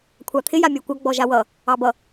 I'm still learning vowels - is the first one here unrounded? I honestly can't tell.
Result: yes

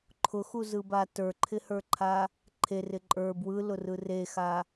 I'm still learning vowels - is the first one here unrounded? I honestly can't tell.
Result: no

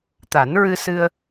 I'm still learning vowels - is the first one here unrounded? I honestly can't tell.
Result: yes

